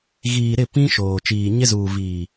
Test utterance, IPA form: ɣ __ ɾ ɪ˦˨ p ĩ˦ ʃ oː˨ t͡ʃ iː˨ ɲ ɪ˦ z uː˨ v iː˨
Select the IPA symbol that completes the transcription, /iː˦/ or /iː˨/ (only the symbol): iː˨